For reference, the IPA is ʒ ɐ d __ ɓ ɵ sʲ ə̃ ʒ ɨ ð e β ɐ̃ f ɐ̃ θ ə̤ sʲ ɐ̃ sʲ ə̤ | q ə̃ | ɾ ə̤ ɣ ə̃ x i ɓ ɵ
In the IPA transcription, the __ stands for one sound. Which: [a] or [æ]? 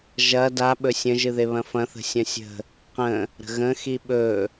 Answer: a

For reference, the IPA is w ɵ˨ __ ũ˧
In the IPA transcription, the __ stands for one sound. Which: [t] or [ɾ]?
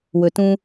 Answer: t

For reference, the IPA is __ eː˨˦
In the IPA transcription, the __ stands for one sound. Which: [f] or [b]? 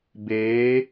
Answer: b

